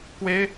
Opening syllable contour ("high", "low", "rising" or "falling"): high